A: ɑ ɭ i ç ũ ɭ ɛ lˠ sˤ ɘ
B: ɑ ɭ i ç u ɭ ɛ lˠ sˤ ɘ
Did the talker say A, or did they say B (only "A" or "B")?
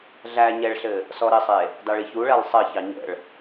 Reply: B